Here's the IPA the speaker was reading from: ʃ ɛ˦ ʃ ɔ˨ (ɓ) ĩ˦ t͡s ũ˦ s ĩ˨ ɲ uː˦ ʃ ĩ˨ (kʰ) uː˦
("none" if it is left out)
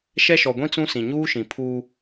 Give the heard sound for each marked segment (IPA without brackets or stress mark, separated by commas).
ɡʷ, pʰ